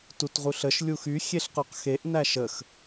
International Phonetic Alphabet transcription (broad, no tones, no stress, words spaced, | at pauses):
tutʁuɬəʃ lʲuxy xʲeɬqoqxeʔ næʃəx